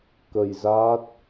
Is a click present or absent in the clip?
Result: absent